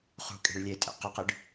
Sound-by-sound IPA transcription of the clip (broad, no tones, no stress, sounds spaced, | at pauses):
χ ṳ kʼ e̤ ɭ lʲ eː tʼ ḛ q ə q ɨ ɖ